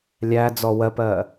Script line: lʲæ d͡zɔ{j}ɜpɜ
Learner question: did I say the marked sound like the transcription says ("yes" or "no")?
no